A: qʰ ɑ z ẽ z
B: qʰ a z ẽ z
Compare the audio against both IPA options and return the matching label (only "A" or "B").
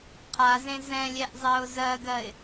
B